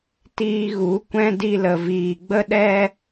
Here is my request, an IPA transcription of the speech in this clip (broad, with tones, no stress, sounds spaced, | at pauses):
t iː˧ ɣ u˨˦ kʷ ɛ̃˦ d i˧ l ə˨ v iː˨ ɡ͡b ə˦ ɗ ɛ˦